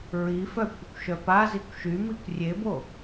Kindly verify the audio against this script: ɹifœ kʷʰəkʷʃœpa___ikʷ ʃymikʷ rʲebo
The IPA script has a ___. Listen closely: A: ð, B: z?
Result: B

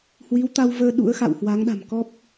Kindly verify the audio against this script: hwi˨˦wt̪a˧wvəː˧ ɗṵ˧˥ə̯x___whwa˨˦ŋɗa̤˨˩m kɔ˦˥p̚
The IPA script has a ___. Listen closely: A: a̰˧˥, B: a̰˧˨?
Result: B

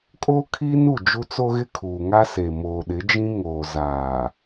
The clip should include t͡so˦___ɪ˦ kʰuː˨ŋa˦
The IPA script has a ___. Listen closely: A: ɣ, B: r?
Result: A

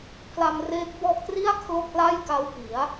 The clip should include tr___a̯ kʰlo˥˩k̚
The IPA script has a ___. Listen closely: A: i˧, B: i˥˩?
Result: B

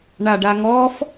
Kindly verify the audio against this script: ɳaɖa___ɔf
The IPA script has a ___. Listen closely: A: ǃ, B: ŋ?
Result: B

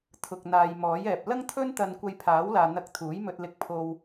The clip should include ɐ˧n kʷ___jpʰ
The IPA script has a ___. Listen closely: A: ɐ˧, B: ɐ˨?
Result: A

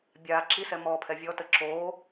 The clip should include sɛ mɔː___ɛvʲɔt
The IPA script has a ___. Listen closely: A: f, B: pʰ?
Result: B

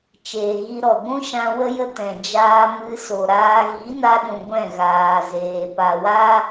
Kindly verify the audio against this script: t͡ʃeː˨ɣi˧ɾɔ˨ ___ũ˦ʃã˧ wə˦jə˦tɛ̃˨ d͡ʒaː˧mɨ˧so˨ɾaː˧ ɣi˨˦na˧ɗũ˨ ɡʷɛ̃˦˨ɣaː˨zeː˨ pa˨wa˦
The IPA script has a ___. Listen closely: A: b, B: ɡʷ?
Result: B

